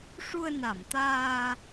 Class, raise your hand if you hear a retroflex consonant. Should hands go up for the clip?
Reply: yes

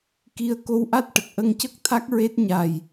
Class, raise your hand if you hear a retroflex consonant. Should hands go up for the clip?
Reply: yes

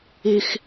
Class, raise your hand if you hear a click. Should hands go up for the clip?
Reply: no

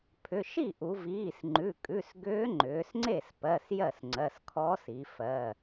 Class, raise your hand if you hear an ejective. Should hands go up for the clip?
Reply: yes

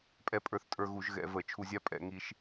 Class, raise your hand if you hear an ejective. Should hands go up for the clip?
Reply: yes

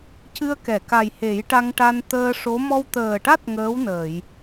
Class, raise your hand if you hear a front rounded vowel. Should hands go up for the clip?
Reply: no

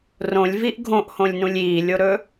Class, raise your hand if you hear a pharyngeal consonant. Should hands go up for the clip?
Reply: no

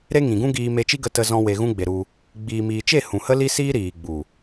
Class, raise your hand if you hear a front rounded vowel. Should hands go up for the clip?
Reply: no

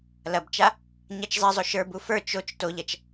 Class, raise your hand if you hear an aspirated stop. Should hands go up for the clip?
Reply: no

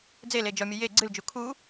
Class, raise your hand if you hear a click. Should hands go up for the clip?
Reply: yes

